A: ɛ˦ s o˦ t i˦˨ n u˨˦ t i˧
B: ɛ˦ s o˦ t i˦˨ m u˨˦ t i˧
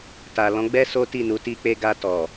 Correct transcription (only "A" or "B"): A